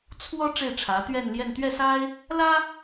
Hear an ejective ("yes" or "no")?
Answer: no